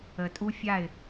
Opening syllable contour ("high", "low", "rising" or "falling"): low